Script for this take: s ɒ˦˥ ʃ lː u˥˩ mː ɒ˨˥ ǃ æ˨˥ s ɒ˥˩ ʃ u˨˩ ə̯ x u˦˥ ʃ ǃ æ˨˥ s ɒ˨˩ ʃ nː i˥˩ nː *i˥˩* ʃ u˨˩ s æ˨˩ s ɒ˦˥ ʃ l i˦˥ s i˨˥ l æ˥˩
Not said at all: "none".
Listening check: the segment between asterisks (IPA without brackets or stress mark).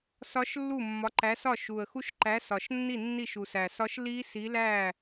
i˥˩